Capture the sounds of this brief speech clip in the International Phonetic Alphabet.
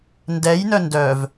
n d ɛ j n œ n d œ v

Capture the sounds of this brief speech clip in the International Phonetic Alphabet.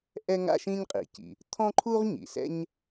ʔ ɛ˥ ŋ a̰˥ ʃ ĩ˥ ɲ qʼ ḭ˩ c ḭ˩ | t̪ʰ ɔ̃˥ ǃʰ u˥ ʁ ɲ ḭ˩ s ɛ̰˥ ɲ

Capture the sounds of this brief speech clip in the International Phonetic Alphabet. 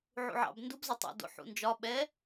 ʕ ṵ ʕ ɑ̰ b n d u b z ɒ tˤ o̰ d o̰ ħ ṵ n d͡ʒ ɒ ɓ ɛ

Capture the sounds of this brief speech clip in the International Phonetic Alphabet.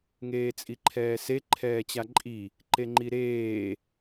ŋ eː t͡sʼ i ǃʰ ɛː s e ǃʰ ɛː t͡ɕ a ǃʼ i | ǃ e ŋ͡ǃ i ɾ eː

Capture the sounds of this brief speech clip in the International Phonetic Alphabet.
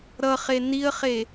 ɾ ʌ χ e n i ə̯ χ e

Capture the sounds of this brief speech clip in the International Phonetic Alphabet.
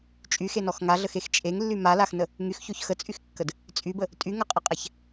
t͡ʃʼ y x e n ɔ x ŋ a ɮ ə x e x t͡ʃʼ e ŋ lː y m a l a x n ə | ŋ y x ç o ç x ə t͡sʼ y x kː ə d | t͡sʼ y b ə | tʼ y ŋ ɐ qʼ ə qʼ a ç

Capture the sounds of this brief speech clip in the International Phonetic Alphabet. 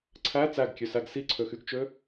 ǀʰ æ t͡s æ ɡ kʲ ø s æ ɡ s i ǀʰ ø x y ɡ t͡ʃ ø

